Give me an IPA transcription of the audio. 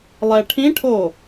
lˠ ɛ ʈʰ ĩ ʈʰ o

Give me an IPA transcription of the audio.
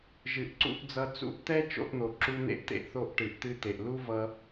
ʒ ɨ˨ ʔ ǀ ṵ˧ ʔ d͡z ʌ˧ t͡s ṵ˧ ʔ t̪ ɛ˦ t͡ʃ o̰˧ ʔ n̪ o˨ ǁ u˦ n̪ ḛ˦ ʔ t̪ ḛ˦ ʔ θ o˧ ʔ ʈ ɨ˨ ʔ t̪ ɨ˧ t̪ e˨ ʔ l u˦ v ʌ˧

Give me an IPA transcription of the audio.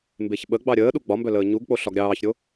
m b e ç ɓ ə ɡ͡b ɑ ɾʲ əː ɗ u ɡ͡b ɒ m b œ l əː ɲ u ɡ k͡p o ɬ ɒ ɡ ɾʲ ɑː ç ɾʲ o

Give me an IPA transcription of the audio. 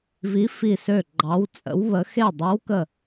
v i˨˦ f i˧˩ s ø˧˩ ɡ͡ǃ ɑ˨˦ w t͡sʼ ə̰˨˦ w β ə˨˦ x e˧˩ dˤ e˨˦ w k ə˧˩

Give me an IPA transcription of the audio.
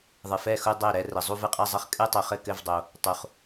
ðˤ ɨ˨ f ɛ˥˩ x u˥˧ dˤ ɛ˥˩ ɾ ɛ˥˧ r ɘ˨ zˤ u˥˧ v ɨ˥˩ qʼ ɛ˥˧ zˤ ɘ˥˩ χ kʼ ɨ˥˧ tˤ u˨ χ ɘ˥˩ k ɘ˥˩ v dˤ o˨ | tˤ u˨ χ

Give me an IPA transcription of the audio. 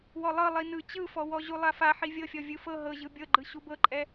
w ɔ lˠ ɤ lˠ i n ɯ t͡ɕ ɯ f ɔ w ɔ ʑ u lˠ a f a ħ i vʲ ɤ fʲ ɔ vʲ ɯ f ɤ ɦ ɤ ʑ ɯ bʲ ɤ ɡ͡ǃ ɯ ɕ u b ɤ ǃʼ ɛ

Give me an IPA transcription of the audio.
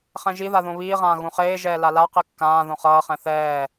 χ ɛ̃ ʒ i ð a ð õ β iː ʁ ãː ɣ ũ χ eː ʒ ɛː l a l a q i kː ãː ð õ χ ʌː χ ɛ̃ θ ɛː

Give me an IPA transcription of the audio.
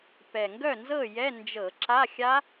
p ɛ˨˩ ŋ ɡ œ˥˩ n z ɤ˥˩ j ɛ˧˥˧ n d͡ʒ ɤ˧˩˧ ǁ a˧˥˧ xʲ a˦˥

